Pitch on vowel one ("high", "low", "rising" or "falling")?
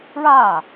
falling